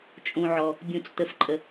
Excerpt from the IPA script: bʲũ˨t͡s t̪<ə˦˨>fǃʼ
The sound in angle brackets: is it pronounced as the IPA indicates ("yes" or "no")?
no